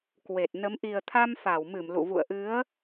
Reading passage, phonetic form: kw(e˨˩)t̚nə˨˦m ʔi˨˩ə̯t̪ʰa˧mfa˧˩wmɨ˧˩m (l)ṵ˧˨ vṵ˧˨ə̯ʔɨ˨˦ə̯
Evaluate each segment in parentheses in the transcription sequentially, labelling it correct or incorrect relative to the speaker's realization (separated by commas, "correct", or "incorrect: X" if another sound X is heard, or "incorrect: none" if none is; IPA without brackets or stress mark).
correct, correct